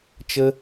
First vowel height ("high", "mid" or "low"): mid